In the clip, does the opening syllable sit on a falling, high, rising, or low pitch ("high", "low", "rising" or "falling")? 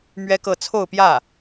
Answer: high